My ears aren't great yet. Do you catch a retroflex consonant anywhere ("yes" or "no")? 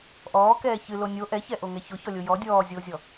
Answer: no